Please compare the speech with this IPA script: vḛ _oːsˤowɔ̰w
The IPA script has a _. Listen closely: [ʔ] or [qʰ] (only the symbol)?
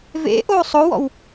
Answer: ʔ